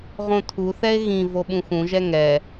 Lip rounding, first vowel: rounded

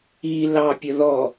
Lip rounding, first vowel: unrounded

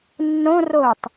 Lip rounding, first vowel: rounded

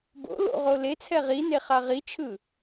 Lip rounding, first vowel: rounded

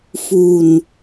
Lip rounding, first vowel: rounded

